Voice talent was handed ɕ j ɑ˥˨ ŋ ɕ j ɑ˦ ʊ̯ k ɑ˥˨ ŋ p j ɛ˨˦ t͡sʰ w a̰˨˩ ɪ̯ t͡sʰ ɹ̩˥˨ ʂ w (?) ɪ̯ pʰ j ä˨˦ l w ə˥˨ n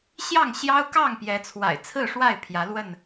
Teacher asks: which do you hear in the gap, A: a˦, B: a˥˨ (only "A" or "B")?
B